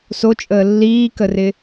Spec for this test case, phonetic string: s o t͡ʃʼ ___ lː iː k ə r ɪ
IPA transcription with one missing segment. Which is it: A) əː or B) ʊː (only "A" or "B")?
A